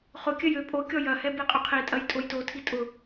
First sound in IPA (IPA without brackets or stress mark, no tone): χ